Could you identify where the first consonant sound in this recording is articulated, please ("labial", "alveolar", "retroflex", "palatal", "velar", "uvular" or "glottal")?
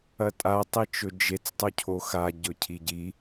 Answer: alveolar